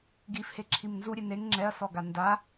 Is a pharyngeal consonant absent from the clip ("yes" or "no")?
yes